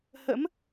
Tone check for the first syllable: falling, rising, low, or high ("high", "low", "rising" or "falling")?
rising